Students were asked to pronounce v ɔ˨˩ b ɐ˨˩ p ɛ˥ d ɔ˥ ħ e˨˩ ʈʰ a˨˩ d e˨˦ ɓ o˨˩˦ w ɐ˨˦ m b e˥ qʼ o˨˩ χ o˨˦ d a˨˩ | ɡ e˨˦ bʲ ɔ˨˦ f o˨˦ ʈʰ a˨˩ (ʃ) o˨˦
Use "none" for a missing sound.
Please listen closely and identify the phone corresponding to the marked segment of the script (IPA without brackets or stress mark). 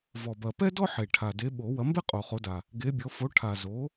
z